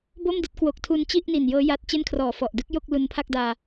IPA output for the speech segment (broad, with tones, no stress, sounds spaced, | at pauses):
b o˥˩ m d i˥˩ t̚ k w o˨˩ k̚ tʰ u˧ n t͡ɕ i˥˩ ʔ n i˨˩ n j ɤː˦˥ j a˦˥ t̚ t͡ɕ e˥˩ n kʰ r ɔː˨˩ f ɔ˨˩ ʔ d ɯ˦˥ k̚ j o˥˩ k̚ l u˧ n pʰ a˥˩ k̚ d aː˧